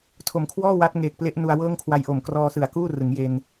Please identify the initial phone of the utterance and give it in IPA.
tʰ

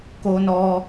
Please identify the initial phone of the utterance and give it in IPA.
k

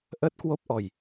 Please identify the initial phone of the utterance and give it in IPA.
ʔ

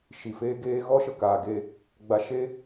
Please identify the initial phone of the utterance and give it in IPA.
ʃ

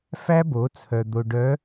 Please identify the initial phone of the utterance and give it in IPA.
f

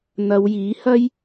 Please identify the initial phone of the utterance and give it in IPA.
n̪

